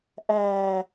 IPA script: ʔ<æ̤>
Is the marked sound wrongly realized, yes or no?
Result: yes